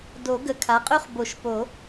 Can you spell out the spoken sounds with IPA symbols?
d o˨˩˦ ɡ ə˨˩ kʰ a˩˥ qʼ ø˥ χ b o˨˩˦ ʃ p o˨˩˦

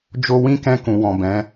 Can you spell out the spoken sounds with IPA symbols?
d͡ʒ o˧ w ĩ˦ k ɛ̃˧ k ũ˨ w ɔ̃˨ b ɛ̃˨˦

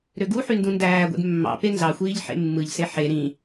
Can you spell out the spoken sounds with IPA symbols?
ɾ ø ɡ u ħ y n d ũ n d æː ɡʷ ḛ d mː ɑ̰ p e n z ɑ xʷ iː ʎ ħ ḛ mː ɯ ʎ s e ħ e ɾ ĩ

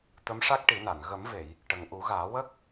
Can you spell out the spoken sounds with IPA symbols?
t̪ ə˧˥ m ʂ a˦˥ k̚ ʈ i˨˩˦ n a˨˩˨ n ɣ ə˨˩˦ m v e˨˩˨ j | ʈ ə˨˩ ŋ ʔ u˨˩˦ ɣ aː˨˩˦ w ə˦˥ k̚

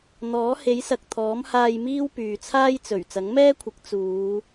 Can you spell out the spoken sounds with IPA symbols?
n̪ ɔː˨˥ h e˨˥ j s ɐ˨ k̚ t̪ʰ ɔː˨˥ m h aː˧ j m iː˥ w p yː˨ t͡sʰ aː˥ j t͡s ɵ˨˩ ɥ t͡s ɐ˨˥ ŋ m ɛː˥ kʷʰ ɪ˨˥ k̚ t͡s uː˨˧

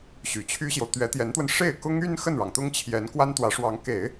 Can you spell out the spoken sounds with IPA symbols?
ɕ y˨˩ t͡ɕʰ y˥ ɕ j o˨ ʊ̯ t̪ ɥ ɛ˧˥ t̪ j ɛ˧˥ n t̪ w ə˧ n ʂ e˥˩ ɪ̯ k ʊ˥ ŋ y˥ n x ə˥˩ n ɻ ɑ˩ ŋ t̪ ʊ˥ ŋ t͡ɕʰ j ɛ˧˥ n k w a˥ n t̪ w ä˧˥ ʂ w ɑ˧˥ ŋ k e˨˩˦ ɪ̯

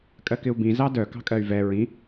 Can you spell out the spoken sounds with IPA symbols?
kʼ ɜ k ɪ u̯ b ĩ z ɑ d œ k ɑ̤ kʼ ɜ y̯ v ɛ ɹ ĩ

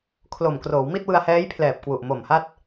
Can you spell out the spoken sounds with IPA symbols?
kʰ l o˨˩ m k r oː˩˦ w m i˥˩ t̚ w ɯ˧ a̯ h ɛː˦˥ j pʰ l ɛː˨˩ p̚ k w u˨˩ ʔ m o˨˩ m h a˥˩ t̚

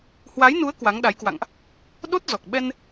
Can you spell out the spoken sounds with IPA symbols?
h w a˨˦ j n u˨˦ ə̯ k w a˨˦ ŋ ɗ a˨˦ j k w a̰˧˨ ŋ ʔ | ɗ o˦˥ t̚ z ɔ˨˩ k̚ ɓ ɛ˧ n

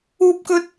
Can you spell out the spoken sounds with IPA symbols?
uː˥ p̚ k ɵ˥ t̚

